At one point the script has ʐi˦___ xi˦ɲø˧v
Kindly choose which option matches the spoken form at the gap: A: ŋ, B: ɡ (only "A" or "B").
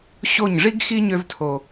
B